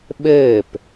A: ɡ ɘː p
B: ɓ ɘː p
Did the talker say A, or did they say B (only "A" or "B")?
B